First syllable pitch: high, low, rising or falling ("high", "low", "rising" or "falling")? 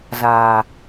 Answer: low